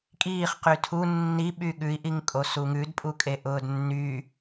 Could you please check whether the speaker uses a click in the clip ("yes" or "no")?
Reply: no